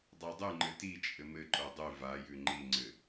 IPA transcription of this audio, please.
dˤ a dˤ ʉ ŋ͡ǃ ɘ t i t͡ʃʼ ɘ m ɘ ǃ o dˤ ʉ v a j ʉ ŋ͡ǃ i ŋ͡ǀ ɘ

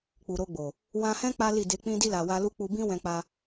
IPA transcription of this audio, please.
k͡p u˨ ɾ o˧ ɡ͡b o˨ | w ã˧ h ɛ̃˦ k͡p a˦ l i˦˨ d e˧ k͡p ĩ˧ d i˧ l a˨ w a˧ l u˦ k͡p u˧ b ĩ˦ w ɛ̃˦ k͡p a˦

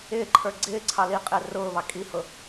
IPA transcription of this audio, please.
ɪː ǃʰ ə˞ ɡ͡ǀ ɪː ǀʰ ɑ l i qʼ ɪː r ʊː β ɑ kʼ i h ʊ

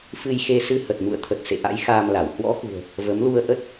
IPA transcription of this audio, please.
f ɨ˧ j x e˧ s ɨ˧ h ə˨˩ t̚ m ṵ˧˨ ə̯ t̪ʰ ə˨˩ t̚ s ḛ˧˨ ʔ a̰˧˥ j x aː˧ m l a˧˩ w h w ɔ̰˧˥ x ṳ˨˩ ə̯ | v ə˨˦ m l u˧ ə̯ ʔ ə˦˥ t̚

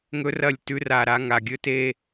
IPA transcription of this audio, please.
ŋ ɵ˦ r ɐ˦˨ lʲ t ʉ˦ r a˨ ɾ a˦ ŋ a˨ ɡʲ ɵ˦ t e˦

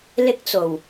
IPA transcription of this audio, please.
l ɪ˥ k̚ t͡s o˨˩ w

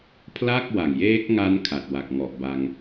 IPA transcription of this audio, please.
pʰ l a˥˩ k̚ w a˨˩ ŋ j eː˦˥ k̚ ŋ a˦˥ n kʰ a˨˩ t̚ w a˨˩ k̚ ŋ ɔ˨˩ ʔ b a˧ ŋ

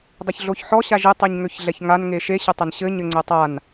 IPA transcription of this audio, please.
dˤ ɛ ç ɮ o ç ħ ɔ ɕ a ʒ ɘ tˤ e ɲ ŋ ø ç ɮ ɛ ç ŋ a n ŋ e ʃ e ɕ ɘ tˤ ʏ n ɕ ɘ ɲ ɘ ŋ͡ǀ ɛ tˤ a n

